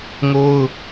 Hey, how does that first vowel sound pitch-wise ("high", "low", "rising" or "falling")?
high